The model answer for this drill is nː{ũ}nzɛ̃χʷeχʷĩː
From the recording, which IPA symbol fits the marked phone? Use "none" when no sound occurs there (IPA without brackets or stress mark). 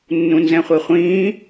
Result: ũ